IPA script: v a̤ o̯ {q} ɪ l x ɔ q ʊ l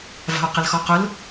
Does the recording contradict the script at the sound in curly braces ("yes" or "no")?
no